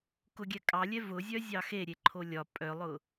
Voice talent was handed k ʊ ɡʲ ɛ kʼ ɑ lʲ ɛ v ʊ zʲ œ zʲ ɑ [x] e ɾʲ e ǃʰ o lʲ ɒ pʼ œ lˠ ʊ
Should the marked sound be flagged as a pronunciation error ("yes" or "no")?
no